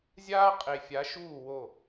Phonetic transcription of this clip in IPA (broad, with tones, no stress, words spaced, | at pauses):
zʲaː˦qʼe˨fʲa˨˦ʃuː˦˨ wo˦˨